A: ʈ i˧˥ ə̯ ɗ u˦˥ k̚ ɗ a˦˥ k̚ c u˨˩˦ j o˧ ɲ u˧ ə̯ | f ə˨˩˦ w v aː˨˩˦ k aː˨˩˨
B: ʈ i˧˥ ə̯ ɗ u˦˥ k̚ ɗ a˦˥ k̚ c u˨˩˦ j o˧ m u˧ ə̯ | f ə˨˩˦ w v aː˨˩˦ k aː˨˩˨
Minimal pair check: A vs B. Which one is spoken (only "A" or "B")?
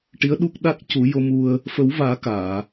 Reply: B